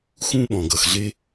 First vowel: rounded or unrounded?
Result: rounded